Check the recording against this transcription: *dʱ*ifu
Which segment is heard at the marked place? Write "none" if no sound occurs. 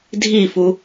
dʱ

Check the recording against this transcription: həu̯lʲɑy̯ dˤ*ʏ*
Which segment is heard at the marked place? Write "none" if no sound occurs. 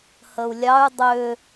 ʏ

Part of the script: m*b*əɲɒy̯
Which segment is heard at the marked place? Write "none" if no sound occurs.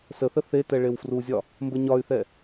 b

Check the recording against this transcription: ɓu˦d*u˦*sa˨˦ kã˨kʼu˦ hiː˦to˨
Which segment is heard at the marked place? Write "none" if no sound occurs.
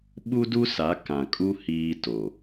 u˦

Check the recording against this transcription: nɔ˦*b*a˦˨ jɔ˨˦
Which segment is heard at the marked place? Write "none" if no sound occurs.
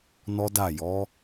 d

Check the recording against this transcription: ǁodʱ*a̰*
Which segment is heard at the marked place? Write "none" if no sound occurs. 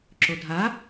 a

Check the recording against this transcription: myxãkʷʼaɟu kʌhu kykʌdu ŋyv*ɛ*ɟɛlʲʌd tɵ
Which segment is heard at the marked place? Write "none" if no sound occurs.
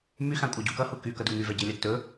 ɛ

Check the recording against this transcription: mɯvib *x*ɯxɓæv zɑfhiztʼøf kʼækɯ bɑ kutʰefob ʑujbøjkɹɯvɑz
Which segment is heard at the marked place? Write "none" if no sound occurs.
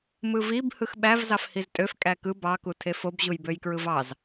h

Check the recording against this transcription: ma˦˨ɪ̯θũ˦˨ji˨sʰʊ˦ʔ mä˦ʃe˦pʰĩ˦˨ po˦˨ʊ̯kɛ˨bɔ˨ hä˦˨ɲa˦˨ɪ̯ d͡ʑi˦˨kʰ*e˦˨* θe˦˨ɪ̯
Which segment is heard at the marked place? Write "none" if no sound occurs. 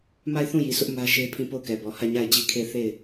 e˦˨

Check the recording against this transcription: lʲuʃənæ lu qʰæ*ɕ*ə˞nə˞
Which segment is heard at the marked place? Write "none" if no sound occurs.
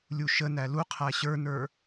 ɕ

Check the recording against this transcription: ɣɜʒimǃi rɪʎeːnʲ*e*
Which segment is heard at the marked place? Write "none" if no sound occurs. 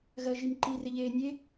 e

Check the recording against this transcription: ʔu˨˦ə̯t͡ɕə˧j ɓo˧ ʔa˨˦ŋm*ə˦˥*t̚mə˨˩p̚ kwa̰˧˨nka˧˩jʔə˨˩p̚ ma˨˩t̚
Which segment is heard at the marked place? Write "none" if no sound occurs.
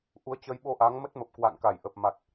ə˦˥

